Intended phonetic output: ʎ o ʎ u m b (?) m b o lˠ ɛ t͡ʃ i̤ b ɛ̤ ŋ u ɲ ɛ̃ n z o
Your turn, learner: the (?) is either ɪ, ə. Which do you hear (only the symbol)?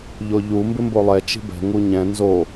ɪ